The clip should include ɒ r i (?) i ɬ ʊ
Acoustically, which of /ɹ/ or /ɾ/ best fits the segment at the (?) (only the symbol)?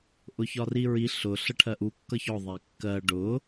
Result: ɹ